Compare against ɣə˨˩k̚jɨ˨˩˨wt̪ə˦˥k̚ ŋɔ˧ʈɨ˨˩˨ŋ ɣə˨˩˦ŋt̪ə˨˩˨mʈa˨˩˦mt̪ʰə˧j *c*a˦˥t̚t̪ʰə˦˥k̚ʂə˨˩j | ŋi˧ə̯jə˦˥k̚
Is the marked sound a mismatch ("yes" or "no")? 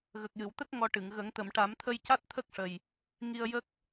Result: no